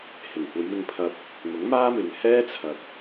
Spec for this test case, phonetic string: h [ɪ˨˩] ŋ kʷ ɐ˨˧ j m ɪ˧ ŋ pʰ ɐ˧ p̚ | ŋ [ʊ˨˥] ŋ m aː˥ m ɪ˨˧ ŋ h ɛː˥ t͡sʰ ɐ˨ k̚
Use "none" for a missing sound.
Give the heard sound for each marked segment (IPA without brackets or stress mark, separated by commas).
ɪ˨˩, ʊ˨˥